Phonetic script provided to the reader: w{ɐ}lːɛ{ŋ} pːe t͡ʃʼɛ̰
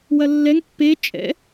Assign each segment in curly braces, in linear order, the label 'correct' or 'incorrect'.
correct, correct

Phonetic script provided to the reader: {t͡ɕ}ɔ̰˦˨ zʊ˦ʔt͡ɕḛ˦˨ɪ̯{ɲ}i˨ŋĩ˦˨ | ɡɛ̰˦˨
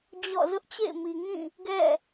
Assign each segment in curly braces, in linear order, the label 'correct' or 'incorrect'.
incorrect, incorrect

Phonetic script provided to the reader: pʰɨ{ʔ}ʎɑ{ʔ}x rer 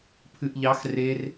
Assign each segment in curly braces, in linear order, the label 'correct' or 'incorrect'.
correct, incorrect

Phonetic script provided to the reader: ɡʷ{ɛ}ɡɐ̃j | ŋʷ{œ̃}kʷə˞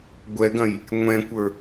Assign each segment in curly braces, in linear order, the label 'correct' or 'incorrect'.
correct, incorrect

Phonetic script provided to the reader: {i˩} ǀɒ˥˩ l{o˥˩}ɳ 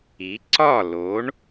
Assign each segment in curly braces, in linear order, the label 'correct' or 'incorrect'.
incorrect, incorrect

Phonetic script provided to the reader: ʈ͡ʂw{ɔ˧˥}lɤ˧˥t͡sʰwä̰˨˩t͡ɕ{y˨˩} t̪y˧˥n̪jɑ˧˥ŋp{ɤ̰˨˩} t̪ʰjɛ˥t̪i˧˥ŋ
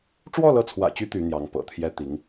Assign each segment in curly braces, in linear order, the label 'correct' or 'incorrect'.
incorrect, incorrect, correct

